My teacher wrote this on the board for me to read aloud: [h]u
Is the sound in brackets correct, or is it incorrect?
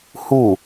correct